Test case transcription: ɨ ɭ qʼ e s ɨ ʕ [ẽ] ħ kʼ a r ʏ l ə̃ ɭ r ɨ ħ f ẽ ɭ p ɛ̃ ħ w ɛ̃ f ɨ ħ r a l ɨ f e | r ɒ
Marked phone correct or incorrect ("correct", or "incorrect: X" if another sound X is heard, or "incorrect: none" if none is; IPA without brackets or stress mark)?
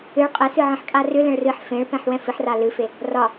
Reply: incorrect: ĩ